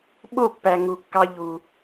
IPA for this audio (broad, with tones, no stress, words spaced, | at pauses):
ɓo˦˨pːæ˨ ŋu˨kːɑ˧ʎu˨